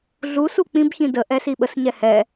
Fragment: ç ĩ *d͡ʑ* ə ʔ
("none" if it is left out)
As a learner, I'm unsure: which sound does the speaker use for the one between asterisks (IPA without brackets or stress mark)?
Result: d